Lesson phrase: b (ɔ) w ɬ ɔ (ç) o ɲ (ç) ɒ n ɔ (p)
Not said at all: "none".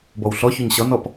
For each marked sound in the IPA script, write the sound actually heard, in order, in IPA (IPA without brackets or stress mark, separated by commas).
ɔ, ç, ɕ, p